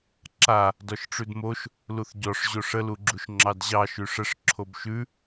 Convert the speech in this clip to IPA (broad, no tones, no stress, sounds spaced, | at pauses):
ǁ a | d ɔ ʃ ʈ͡ʂ ʉ d m o ʃ | l u θ ɟ ɔ ʂ ʑ o ʂ ə l u ɡ͡ǁ u ʃ ŋ͡ǁ ɑ d ʑ ɑ ʃ ʉ ʂ ə ʂ ǁʰ o b ʃ ʉ